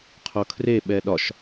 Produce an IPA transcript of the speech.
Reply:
qʰ o kʰ r e ɓ ɛ ɗ ɒ ʃ

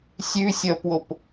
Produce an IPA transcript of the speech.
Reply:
sʲ ʉ sʲ ʌː p w o p

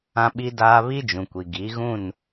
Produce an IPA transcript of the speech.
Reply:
ã˨ ɓ i˨ d aː˨ β i˦ d͡ʒ ũ˨ kʷ i˨ ɡ i˨˦ ɣ ũ˦˨ n

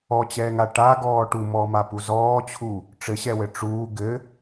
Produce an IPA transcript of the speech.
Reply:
ɔ t͡ɕ ɛː ŋ a ʈ a ɡ ɔː ʈ u m ɔː m a p u z ɔː t͡ɕʰ u | ʈ͡ʂ ɘ ɕ ɛ w ɘ ʈ͡ʂ uː ɡ ɘ

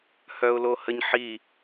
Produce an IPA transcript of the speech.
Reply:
h œ ʊ̯ l o h ə ɲ ħ i

